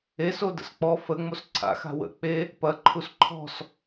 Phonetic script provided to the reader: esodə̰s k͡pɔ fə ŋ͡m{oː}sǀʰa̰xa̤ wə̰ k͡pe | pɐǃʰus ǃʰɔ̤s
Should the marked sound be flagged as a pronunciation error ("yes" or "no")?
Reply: yes